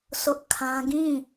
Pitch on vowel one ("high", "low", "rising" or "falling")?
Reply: high